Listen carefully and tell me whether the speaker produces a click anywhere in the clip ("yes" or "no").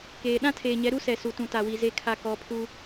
no